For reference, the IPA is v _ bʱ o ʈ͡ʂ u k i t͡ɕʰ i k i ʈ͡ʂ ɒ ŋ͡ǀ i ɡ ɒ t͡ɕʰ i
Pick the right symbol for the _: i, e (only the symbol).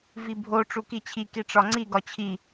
i